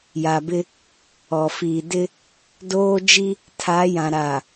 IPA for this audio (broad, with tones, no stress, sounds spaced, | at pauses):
j a˨ b ɪ˦ | ɔ˨ f iː˨ d ɪ˦ | d oː˦ d͡ʒ i˦ | tʰ a˨˦ j ã˨ ɾ a˨